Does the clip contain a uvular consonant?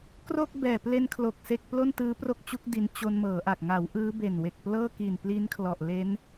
no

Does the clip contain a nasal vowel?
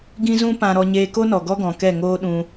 yes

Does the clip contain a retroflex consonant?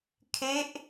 no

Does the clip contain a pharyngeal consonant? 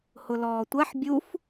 yes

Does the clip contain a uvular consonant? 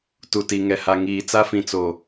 no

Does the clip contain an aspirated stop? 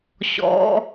no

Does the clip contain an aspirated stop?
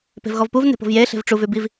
no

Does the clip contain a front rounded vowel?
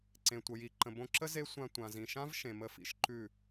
no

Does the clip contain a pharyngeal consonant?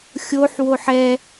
yes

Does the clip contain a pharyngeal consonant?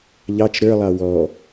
no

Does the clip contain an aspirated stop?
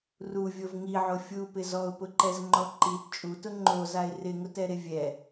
no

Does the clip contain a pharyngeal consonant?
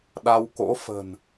no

